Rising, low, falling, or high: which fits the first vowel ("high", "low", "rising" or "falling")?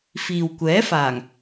low